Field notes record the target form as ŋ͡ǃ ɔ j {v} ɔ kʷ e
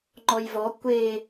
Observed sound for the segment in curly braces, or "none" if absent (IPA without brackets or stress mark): v